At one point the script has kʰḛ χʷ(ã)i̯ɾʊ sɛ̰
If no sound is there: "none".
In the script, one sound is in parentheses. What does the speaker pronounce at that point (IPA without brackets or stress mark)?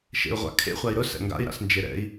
a